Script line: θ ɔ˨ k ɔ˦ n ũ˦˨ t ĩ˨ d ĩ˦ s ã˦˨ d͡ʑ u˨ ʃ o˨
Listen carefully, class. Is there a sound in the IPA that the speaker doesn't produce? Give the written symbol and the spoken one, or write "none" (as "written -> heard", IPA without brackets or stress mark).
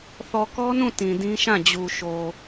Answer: s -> ʃ